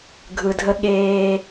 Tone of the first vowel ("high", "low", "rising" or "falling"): low